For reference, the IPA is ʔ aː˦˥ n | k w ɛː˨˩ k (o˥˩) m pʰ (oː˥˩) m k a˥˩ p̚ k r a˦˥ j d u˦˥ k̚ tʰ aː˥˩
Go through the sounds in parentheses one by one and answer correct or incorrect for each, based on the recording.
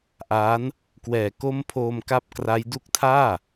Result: incorrect: o˧, incorrect: oː˧

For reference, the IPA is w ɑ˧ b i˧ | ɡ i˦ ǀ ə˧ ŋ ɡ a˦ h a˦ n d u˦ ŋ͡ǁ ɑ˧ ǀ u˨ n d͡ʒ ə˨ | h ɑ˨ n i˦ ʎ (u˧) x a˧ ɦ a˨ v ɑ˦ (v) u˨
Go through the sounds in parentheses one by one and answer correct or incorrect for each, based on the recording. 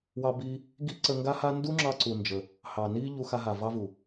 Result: correct, correct

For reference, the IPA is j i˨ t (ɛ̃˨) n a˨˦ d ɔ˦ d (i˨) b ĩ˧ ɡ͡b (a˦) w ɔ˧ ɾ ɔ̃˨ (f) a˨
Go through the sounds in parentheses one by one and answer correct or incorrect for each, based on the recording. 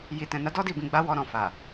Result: correct, incorrect: i˦˨, correct, correct

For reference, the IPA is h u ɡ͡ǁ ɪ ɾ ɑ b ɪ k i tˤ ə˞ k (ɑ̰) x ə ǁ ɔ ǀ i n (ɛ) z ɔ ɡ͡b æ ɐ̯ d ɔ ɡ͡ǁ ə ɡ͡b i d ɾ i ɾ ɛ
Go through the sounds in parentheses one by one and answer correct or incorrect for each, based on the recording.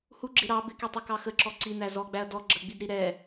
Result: incorrect: ɑ, incorrect: æ

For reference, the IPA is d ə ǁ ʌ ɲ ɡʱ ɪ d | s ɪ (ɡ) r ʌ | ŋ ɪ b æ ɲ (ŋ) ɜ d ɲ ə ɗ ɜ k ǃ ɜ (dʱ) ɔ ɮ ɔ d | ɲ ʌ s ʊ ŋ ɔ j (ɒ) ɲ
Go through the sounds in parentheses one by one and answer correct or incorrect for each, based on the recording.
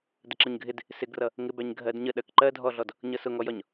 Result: correct, incorrect: ɡʱ, correct, correct

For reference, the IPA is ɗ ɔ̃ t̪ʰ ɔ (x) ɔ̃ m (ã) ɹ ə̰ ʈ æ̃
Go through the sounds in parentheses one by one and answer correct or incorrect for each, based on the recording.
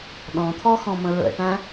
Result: correct, incorrect: ə̃

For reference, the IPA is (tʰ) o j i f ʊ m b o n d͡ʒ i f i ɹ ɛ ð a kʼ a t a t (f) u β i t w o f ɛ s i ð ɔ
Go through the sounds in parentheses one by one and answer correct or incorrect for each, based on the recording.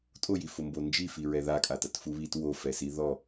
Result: incorrect: tʼ, correct

